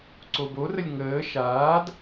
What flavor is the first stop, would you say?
click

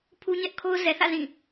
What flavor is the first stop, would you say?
aspirated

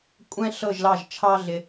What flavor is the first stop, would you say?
ejective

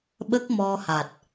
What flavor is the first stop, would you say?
implosive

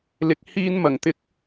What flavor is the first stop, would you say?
plain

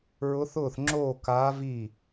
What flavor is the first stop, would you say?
click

